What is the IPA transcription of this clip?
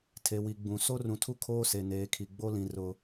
tʰ e˨ w i˨ ɡ͡b ũ˨ s o˦ r ũ˨ tʰ u˦ kʰ oː˦ s e˨ n eː˨˦ kʰ i˨ ɡ͡b o˦ l ĩ˨ r ʊ˨

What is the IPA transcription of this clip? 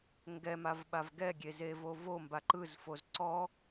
ŋ ɡ ɛ m a v ɓ a v ɡ ɛ ɡʲ e z e v o v o m b a ǃ ɯ z f o z ǀ ɔ

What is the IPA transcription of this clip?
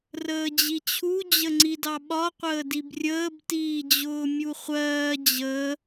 r əː d͡ʑ i t͡ɕʰ u d͡ʑ ə ŋ͡ǀ i d ɑ ɓ ɒ qʷ əː d i b rʲ əː b t iː d͡ʑ ʊː mʲ u χʷ ɜː d͡ʑ ə

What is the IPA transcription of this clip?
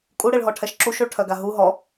kʼ u ɽ e ɭ ɦ ɔ ʈʰ ɛ ʃ ǁ u ʃ o ɭ ʈʰ œ ɡ a ɦ u ɦ ɔ

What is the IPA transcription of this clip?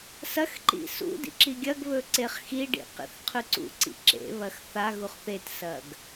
s ɐ x ǃ ḭ s ṵ d ḭ ǁ i ɡʲ ɐ ɡ β ɵ ǀ e χ x i ɖ ḭ q ḭ θ qʰ ʉ ǀ ṵ ǀ ḭ ǁ ḛ β ɐ x θ a ɣ u χ θ e t s ɐ ɡ

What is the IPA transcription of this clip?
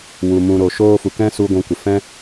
w u˨ m ũ˨ ɾ o˨ ʃ oː˧ f u˨ k ɛ̃˦ s u˧ ɡʷ ũ˨ kʷ ə˨ f ɛ̃˦

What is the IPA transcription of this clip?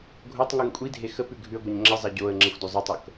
ɡʱ o tˤ ŋ u ŋ kʷʼ i dʱ e x ə p ʉ ɡʱ ʉ ə̯ ɡʷ ɑ ɲ ŋ͡ǁ ə zˤ a ɟ o ə̯ ŋ͡ǁ ə xʷ d o zˤ o tˤ ɤ k

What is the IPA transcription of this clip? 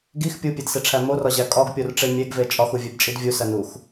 ɡ i x pʲ u pʲ e d s e ʈ͡ʂʰ æ m o r ɒ ʑ æ kʼ ɒ ɡ pʲ o r ʈ͡ʂ e mʲ e ɡ v e t͡ʃʼ ɒ x u vʲ e b t͡ʃʼ i d vʲ u s æ n u x

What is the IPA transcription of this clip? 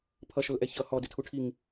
pʰ ʌ ʃ ʊ l ʔ ɛ ç ʌ h ɔ d ɪ tʰ u ʈʰ i ŋ

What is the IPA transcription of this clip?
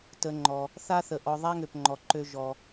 t ə˨ ŋ͡ǃ ɔ˩ | θ a˦ θ ə˩ ʔ ɔ˨ ðˤ a˦ ŋ ø˩ p ŋ͡ǃ ɔ˩ ǃ ø˨ ʒ ɔ˩

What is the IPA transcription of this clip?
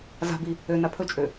z a̤ b i | ø n a pʰ ɵ t͡ʃʼ ø

